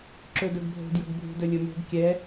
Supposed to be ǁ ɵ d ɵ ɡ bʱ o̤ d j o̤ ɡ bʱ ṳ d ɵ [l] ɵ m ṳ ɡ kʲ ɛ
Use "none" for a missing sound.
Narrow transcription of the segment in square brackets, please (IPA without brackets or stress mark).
lʲ